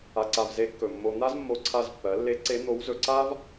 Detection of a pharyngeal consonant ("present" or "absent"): absent